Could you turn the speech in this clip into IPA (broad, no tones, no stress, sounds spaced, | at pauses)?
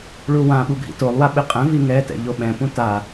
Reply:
ɭ u w ã ɓ u ɡʱ ḭ t o lˠ w a ɓ ɪ qʼ ɛ̃ v i ŋ ɛ t ɛ̰ ʎ o ɓ ɛ̃ p ũ t a